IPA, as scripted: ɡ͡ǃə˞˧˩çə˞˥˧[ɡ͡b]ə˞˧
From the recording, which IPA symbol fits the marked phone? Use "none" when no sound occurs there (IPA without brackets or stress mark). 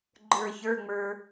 ŋ͡m